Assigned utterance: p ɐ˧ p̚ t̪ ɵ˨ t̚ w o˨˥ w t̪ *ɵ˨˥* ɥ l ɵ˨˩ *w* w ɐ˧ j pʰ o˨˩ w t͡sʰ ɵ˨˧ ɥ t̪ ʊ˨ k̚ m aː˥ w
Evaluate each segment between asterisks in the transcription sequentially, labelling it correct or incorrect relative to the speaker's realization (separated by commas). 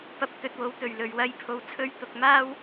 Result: incorrect, incorrect